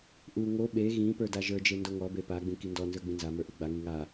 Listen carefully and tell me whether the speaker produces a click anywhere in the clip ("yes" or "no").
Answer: no